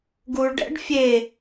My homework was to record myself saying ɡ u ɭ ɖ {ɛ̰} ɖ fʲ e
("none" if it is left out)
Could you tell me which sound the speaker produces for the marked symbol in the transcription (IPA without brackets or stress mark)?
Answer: ɛ̰